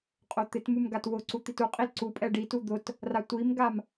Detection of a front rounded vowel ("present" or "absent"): absent